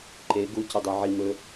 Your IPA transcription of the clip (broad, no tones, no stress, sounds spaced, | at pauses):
ǃ e ɡ u c ɵ dˤ œ ʕ i m ɵ